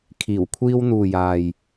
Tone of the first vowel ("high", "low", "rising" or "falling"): low